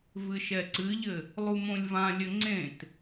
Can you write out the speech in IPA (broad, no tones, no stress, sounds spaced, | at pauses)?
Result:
v ɨ ʃ ɛ ǀ ɨ ʎ ɘ | lˠ u m õ lʲ v ã lʲ ɘ ŋ͡ǀ ẽ t